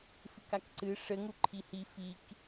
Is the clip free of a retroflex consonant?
no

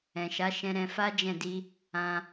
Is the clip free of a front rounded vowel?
yes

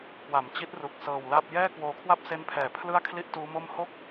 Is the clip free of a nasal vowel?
yes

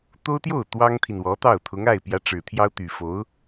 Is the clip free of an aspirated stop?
no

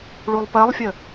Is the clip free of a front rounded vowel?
yes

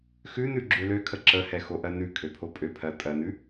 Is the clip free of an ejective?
no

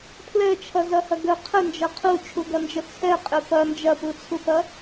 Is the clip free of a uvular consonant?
no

